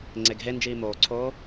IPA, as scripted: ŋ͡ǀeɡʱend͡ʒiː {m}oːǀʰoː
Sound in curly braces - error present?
no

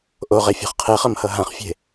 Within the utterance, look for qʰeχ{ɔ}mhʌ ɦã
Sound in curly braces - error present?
yes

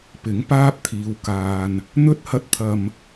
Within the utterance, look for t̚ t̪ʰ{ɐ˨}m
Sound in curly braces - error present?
no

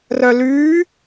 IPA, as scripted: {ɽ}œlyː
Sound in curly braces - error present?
yes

